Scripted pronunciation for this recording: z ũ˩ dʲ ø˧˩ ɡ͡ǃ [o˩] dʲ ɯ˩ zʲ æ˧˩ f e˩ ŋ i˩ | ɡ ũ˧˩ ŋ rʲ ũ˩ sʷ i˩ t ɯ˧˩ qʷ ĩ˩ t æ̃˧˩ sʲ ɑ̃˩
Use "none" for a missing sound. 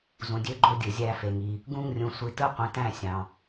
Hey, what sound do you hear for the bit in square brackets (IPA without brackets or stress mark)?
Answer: o˧˩